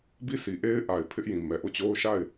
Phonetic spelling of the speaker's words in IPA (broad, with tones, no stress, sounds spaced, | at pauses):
b i˦˨ s i˨ ʔ e˦ ɪ̯ ʔ a˨ ɪ̯ pʰ ɪ˦ ʔ j ĩ˨ m ɛ˨ ʔ o˦˨ t͡ɕ o˦ ʊ̯ ʃ a˦˨ ɪ̯